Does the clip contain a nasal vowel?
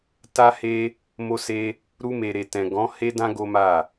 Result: yes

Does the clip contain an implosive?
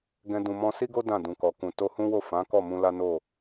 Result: no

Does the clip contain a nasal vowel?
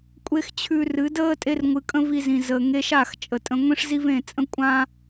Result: yes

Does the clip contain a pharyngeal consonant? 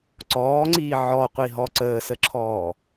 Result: yes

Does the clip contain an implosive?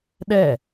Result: yes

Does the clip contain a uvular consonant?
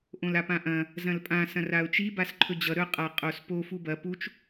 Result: yes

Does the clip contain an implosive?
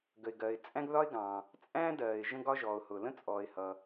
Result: no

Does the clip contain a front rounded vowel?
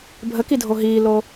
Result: no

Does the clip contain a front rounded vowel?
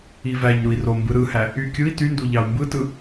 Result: yes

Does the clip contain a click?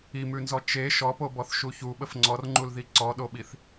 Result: yes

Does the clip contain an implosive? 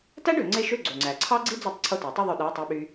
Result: yes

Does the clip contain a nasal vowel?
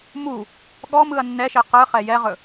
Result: no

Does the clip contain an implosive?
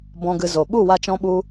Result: yes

